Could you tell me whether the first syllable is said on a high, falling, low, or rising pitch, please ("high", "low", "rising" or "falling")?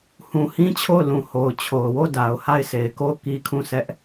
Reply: low